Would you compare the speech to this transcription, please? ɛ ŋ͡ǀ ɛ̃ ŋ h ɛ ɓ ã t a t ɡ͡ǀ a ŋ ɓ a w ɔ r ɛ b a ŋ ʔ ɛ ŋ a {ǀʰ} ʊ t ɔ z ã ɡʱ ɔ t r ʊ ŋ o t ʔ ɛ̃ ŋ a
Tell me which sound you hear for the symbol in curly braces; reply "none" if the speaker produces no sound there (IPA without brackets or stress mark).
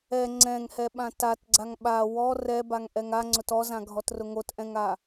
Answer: ŋ͡ǀ